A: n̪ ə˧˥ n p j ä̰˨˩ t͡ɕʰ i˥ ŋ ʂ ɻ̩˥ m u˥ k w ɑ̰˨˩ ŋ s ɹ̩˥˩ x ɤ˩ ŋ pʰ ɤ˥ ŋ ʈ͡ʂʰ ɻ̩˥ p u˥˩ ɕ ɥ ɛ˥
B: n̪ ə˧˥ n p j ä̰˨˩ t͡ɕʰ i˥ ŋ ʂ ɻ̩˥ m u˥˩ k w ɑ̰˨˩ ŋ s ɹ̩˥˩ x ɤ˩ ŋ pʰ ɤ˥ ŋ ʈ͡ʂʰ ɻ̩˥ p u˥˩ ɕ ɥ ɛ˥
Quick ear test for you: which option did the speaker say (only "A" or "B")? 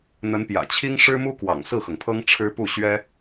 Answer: A